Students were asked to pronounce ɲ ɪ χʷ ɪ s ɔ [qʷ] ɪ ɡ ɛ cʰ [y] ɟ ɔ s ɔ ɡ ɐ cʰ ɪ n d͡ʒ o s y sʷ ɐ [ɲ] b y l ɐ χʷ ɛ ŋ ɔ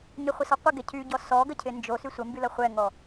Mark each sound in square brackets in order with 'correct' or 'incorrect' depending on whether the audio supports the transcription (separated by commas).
correct, correct, incorrect